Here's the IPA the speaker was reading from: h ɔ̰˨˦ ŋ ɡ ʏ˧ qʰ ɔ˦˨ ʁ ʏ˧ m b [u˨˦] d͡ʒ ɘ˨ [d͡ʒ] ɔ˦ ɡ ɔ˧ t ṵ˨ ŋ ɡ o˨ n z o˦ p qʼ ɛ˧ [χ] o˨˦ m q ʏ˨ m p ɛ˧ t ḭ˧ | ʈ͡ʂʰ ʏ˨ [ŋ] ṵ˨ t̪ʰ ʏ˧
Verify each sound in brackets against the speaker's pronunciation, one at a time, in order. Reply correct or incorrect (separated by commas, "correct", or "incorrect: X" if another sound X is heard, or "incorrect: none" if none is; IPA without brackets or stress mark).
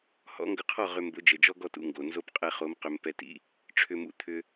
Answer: incorrect: ʊ˨˦, correct, correct, incorrect: m